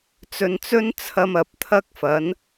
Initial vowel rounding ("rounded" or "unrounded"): rounded